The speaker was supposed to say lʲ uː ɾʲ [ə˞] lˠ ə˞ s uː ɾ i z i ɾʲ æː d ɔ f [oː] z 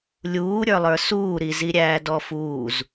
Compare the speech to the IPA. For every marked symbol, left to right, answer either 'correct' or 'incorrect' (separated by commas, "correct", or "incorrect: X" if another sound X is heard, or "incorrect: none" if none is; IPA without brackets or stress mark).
correct, incorrect: uː